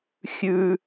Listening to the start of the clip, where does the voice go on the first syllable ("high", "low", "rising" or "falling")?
low